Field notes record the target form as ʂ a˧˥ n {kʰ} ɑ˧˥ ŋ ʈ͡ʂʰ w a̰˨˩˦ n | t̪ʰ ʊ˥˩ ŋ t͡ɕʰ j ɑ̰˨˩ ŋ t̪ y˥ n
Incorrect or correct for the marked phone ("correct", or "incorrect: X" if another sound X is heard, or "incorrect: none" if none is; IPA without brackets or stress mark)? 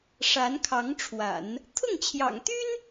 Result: correct